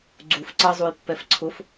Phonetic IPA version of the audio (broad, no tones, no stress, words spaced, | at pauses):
ɡ͡ǀuf ǀʌzˤujpːɛf ǀʰʊf